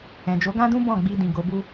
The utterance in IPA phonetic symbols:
ɛ̃˨d͡ʒo˨˦ɡã˦dũ˦ bɔ̃˦˨ɡ͡bi˧ dĩ˨ ɡo˨˦bu˦

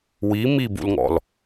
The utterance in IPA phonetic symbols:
wi mibṵlŋɔ̰l

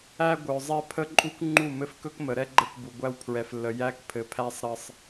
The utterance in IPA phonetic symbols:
æ˦ɡʷœ˨ zˤɛ˦pʰə˦ǃʼu˦kŋ͡ǃu˦˨ mɘ˦fkɵ˦kmə˨ ɾɛ˦ɡ͡ǃə˦˨kbu˨ɡʷæ˦w pʰɹɛ˨flːə˨ jæ˦kpʰɘ˨pʰæ˦sˤ ɾɘ˦sˤ

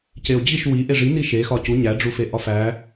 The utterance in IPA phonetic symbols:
ceo̯d͡ʑiʃ wi ʔeʐini ʃexɒ cu ɲæɖ͡ʐufe ʔɒfæ

